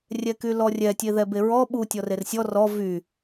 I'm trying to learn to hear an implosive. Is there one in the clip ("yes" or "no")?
yes